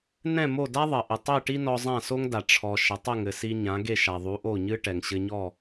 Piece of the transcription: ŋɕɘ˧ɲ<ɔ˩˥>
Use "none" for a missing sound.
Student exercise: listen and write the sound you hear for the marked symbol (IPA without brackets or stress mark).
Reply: ɔ˥˩